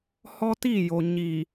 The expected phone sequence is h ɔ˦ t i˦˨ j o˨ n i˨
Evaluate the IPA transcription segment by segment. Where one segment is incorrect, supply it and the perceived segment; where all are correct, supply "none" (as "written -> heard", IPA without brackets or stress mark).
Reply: n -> ɲ